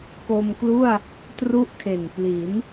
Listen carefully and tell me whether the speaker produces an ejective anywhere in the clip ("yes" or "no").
no